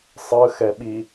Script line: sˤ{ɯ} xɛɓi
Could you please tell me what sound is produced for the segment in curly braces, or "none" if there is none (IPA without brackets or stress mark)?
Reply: ɯ